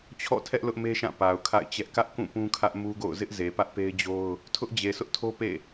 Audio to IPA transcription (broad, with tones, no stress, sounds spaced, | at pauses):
t͡ɕʰ ɔ̰˦˨ tʰ ɛ˦ ʔ l ʊ˦ ʔ m e˦ ʃ ã˦˨ p a˨ ʊ̯ kʰ a̰˦˨ ɪ̯ t͡ɕ ɛ˦ ʔ k ä˦ ʔ k ũ˦˨ p ũ˦ kʰ ä˦ ʔ m u˦ ɡ o̰˦˨ ʊ̯ z ɪ˦ ʔ z e˨ p ä˦ ʔ p e˦ ɪ̯ d͡ʑ o˦ ʊ̯ | tʰ ʊ˦ ʔ d͡ʑ e˨ s ʊ˦ ʔ tʰ o˦ p ḛ˦˨